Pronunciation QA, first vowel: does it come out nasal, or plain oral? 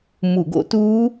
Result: oral